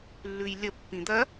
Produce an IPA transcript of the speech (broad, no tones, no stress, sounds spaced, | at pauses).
lː ʉ j lʲ ə pː ĩ d̪ ɐ